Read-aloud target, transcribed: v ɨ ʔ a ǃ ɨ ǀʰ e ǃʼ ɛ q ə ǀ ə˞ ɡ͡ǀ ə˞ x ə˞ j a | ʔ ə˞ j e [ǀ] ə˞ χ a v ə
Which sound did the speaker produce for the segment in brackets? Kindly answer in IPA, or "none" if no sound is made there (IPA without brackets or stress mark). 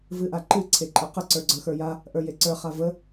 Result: ǀ